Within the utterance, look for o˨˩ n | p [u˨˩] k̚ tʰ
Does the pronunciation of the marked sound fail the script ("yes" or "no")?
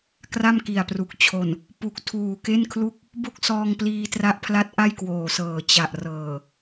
no